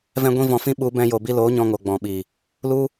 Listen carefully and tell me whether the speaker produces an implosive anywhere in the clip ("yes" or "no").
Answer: yes